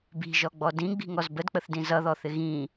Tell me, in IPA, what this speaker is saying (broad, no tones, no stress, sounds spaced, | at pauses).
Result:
b i̤ ʒ ɔ ɡ͡b ɔ d ĩ ɡ͡b i̤ ŋ ɔ z b ə d k͡p ə θ d ĩ z ʌ ð ɔ θ ɪ ɣ ĩ